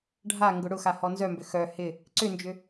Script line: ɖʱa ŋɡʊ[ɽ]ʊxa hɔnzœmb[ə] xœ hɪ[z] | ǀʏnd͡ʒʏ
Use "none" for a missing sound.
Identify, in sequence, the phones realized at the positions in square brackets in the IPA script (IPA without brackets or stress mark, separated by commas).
ɽ, ʏ, none